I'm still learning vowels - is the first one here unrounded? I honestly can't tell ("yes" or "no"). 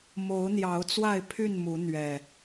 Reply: no